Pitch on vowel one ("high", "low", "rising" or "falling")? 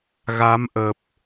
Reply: rising